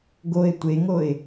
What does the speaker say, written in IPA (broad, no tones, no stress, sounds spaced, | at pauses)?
ɡ o ɪ̯ tʷ e ŋ o ɪ̯